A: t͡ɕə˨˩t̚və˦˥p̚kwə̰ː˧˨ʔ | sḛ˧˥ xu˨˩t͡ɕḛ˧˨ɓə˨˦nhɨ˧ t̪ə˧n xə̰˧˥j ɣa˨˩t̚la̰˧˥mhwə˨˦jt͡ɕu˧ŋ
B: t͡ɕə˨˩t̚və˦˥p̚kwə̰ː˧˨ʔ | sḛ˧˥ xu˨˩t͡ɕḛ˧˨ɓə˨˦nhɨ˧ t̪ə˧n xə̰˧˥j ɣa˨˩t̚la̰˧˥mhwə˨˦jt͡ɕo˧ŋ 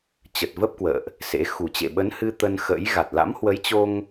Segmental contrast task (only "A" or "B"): B